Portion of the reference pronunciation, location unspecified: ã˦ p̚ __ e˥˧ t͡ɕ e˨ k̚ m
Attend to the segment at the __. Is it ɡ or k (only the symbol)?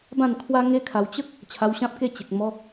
k